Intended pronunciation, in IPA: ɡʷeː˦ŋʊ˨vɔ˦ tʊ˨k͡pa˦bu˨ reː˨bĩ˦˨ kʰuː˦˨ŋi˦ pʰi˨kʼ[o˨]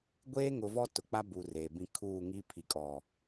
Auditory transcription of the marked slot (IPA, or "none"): ɔ˨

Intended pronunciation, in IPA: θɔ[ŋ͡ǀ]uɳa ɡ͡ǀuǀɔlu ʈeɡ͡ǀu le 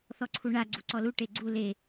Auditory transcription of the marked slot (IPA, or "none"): ǀʰ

